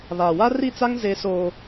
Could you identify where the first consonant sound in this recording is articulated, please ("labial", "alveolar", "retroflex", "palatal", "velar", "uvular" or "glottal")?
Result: labial